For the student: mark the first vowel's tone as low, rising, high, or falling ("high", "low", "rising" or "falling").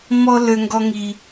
high